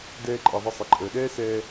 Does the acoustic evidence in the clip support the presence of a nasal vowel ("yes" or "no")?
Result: no